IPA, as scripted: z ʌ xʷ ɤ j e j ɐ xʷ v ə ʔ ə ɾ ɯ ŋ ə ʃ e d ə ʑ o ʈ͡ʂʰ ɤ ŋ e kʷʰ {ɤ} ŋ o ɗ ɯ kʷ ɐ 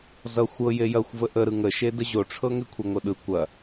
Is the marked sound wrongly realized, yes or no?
no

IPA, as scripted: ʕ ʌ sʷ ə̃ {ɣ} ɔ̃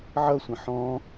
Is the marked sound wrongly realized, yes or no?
yes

